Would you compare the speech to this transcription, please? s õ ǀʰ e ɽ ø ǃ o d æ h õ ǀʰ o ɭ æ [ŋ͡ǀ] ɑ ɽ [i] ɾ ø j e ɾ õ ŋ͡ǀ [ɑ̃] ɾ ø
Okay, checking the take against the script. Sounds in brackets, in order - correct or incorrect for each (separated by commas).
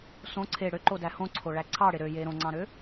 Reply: incorrect, incorrect, correct